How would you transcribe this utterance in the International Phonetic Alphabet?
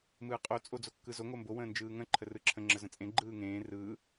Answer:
m ɯː qʼ o t͡sʼ o d͡z o kː ɯ z o ŋ o m b o w ə̃ː n d͡ʒ ɯː ŋ ə̃ ǃʰ ə r ɯ ǁʰ ə̃ ŋ͡ǁ ə z ə̃ t͡sʼ ẽ ɡ͡ǃ ɯː ŋ ẽː r ɯː

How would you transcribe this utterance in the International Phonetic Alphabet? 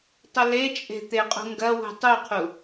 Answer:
tˤ ə l e t͡ʃʼ e̤ t̪ e qʼ ṳ ŋ ɡ ɐ w ṳ tˤ u qʰ u

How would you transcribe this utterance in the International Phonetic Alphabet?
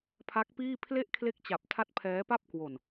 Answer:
pʰ a˦˥ k̚ p iː˥˩ pʰ l e˥˩ ʔ kʰ l e˦˥ k̚ t͡ɕ a˨˩ p̚ tʰ a˦˥ t̚ pʰ ɛː˦˥ p a˥˩ p̚ k w o˨˩ n

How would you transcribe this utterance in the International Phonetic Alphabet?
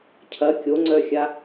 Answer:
cʰ ɐ kʲ o ŋ͡ǀ œ xʲ a

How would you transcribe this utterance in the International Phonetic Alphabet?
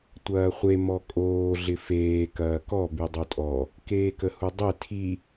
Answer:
tʷ ɐː χʷ e m ɔ kʼ oː ɮ ɪ f eː k ɐː k ɔ b y dˤ o tʼ ɔ | k eː k ə h u dˤ e tʰ i

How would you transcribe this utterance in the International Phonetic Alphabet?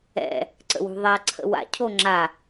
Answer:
ɛ̰ | ǀ ə̰ w ṳ ðˤ a ǀʰ ə̰ w a̰ cʰ o ŋ͡ǁ a

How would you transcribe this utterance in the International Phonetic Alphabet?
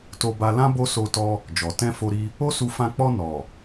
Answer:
t o˧ b a˧ l ã˦ b o˦ s o˧ t ɔ˧ | d͡ʒ ɔ˨ t ɛ̃˧ f o˧ ɾ i˧ | o˦ s u˧ f ã˧ k͡p ɔ˧ n ɔ˨

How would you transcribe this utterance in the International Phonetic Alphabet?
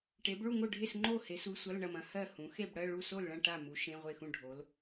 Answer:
ʈ e˨˦ b ɭ u˥˨ ŋ o˥˨ ɖʱ e˥˨ s ŋ͡ǃ o˥˨ h e˨˦ s u˨˦ sʷ ɐ˧˥˧ l ɳ ɐ˥˨ m ɐ̃˨˦ h ɜ˥˨ h ũ˨˦ x e˥˨ b ɽ ɜ˧˥˧ ɭ u˥˨ s o˥˨ l ɭ ɐ̃˥˨ ʈ a˥˨ m u˨˦ ʃ ẽ˧˥˧ ʁʷ e˥˨ x ũ˥˨ ɖʱ o˨˦ l

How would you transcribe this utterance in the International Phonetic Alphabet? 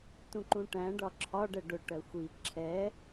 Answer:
t ũ ǃ ũ ʈ æ̃ ɖ ɒ ǁʰ ɒ ɖ ɛ ɖ ʊ ʈ ɜ xʷ i ǁʰ ɛ

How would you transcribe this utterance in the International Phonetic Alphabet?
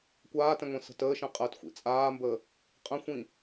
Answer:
kʷ aː t ɛ̃ ŋʷ ĩ s ə̤ t əː ʃ ɛ̃ qʼ əː t xʷ ḭ t͡sʼ aː m b əː | qʼ ə̃ xʷ ĩ

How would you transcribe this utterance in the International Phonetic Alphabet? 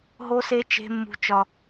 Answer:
ɦ o˦ s e˦ t͡ʃ e̤˦ mː ṳ˦ t͡ʃ ɒ˦

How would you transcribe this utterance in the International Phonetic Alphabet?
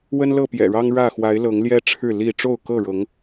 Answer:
w ə˦ n l ɤ˥˨ p j ɛ̰˨˩ ɻ ɑ˦ ŋ ɻ ä˥˨ x w a˨˦ ɪ̯ l ɤ˨˦ ŋ l j ɛ˦ ʈ͡ʂʰ ɻ̩˥˨ l i˥˨ ʈ͡ʂ o˥˨ ʊ̯ k ɤ˥˨ ɻ ɤ˨˦ ŋ

